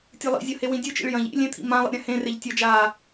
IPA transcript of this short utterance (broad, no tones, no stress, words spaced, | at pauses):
tʲɯlˠḭzʲʌ hewĩdʲɯt͡ʃḭɭ jɐ̃ʎ ḭ lʲẽt̪ʰḭ mãlˠḭ ɾʲãhẽreʎ tʲʌd͡ʒaː